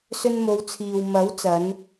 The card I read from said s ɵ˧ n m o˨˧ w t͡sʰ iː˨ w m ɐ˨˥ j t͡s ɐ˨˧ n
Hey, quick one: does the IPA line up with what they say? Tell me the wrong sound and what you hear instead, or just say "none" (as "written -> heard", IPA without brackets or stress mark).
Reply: j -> w